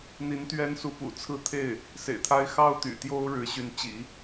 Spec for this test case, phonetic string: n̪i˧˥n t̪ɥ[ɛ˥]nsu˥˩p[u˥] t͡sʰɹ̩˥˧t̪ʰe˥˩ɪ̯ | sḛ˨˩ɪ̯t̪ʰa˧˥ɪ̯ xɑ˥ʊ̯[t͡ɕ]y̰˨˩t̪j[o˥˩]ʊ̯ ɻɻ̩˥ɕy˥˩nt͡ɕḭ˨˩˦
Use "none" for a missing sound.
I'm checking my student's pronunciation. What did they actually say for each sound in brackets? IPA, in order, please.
ɛ˥, ṵ˨˩, t̪, o˥

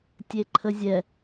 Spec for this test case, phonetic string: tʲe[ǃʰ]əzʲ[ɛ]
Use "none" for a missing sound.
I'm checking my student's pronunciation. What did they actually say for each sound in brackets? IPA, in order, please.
ǃʰ, ɛ

